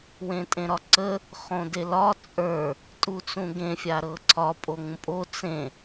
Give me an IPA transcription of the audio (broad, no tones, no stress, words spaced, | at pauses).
wẽtʼẽɾɒǀə | χõdelɒ t͡sʼə˞ | tʼut͡sũɡẽ fʲaɾɤǀʰɒ pʼoŋũpʼo t͡sẽ